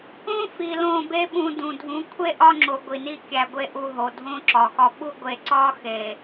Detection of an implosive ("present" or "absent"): present